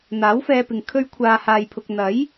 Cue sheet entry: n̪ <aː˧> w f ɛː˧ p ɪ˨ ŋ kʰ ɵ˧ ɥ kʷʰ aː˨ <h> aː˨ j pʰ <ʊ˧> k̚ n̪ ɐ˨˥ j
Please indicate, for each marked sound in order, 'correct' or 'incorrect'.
incorrect, correct, incorrect

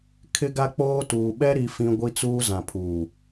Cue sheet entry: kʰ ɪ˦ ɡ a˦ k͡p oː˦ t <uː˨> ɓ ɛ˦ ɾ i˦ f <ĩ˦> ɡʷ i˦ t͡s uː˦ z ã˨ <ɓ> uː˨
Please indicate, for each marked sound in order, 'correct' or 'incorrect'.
correct, correct, incorrect

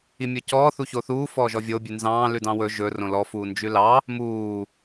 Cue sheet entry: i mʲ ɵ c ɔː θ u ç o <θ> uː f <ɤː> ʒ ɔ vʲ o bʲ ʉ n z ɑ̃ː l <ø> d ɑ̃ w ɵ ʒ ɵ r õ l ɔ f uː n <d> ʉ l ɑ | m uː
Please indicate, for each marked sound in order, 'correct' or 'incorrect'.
correct, incorrect, incorrect, incorrect

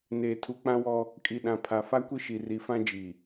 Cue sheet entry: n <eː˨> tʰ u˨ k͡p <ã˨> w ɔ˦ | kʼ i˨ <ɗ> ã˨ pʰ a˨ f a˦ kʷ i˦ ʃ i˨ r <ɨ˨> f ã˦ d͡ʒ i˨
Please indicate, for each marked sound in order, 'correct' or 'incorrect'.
correct, incorrect, correct, incorrect

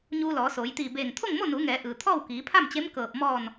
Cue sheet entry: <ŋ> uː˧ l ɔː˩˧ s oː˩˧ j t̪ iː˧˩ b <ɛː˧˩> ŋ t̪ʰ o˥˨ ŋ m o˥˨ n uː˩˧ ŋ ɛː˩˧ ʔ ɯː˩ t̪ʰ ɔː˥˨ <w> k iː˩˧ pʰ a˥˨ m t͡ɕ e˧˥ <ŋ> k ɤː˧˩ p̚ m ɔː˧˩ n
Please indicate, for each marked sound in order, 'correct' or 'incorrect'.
incorrect, incorrect, correct, incorrect

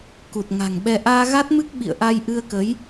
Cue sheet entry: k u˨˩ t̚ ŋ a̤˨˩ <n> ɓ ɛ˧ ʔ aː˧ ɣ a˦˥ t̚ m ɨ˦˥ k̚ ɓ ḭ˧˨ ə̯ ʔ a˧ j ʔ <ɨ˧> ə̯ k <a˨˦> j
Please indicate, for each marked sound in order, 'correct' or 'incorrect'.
incorrect, correct, incorrect

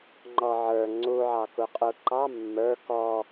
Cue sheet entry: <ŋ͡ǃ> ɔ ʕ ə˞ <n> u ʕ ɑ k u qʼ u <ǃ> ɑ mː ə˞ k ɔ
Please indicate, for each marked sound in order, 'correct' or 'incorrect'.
correct, incorrect, correct

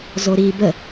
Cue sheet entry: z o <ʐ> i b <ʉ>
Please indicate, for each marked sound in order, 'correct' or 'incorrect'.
incorrect, incorrect

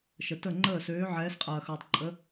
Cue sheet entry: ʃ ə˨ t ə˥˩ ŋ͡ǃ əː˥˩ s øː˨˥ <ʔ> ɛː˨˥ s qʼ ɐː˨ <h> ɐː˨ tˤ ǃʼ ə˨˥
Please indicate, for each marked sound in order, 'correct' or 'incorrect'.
incorrect, incorrect

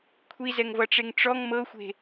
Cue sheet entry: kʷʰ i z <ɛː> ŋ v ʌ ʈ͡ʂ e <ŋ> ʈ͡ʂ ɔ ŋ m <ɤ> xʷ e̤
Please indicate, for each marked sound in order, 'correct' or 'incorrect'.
incorrect, correct, correct

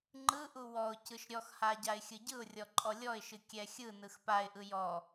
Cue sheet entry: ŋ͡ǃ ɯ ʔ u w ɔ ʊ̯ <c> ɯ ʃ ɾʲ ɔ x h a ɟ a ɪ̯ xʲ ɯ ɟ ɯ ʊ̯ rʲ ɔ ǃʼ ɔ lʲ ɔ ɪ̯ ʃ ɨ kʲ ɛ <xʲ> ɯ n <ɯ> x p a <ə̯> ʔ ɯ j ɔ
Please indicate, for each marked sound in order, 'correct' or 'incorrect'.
correct, correct, correct, incorrect

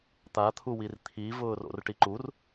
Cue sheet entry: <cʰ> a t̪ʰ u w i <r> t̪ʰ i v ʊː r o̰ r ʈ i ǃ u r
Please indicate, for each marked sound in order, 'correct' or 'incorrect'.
incorrect, correct

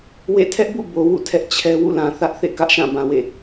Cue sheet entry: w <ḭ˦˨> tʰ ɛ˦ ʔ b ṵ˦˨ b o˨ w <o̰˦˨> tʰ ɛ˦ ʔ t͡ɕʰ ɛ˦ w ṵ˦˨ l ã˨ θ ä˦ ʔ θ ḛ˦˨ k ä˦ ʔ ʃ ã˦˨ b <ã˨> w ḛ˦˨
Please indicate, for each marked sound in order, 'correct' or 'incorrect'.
incorrect, incorrect, correct

